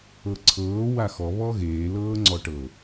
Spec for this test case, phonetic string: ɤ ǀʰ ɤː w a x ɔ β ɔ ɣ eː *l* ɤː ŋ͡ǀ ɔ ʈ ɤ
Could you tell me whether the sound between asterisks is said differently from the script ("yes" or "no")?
no